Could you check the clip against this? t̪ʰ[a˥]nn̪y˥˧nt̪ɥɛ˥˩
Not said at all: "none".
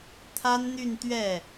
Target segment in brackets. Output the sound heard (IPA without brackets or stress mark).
a˥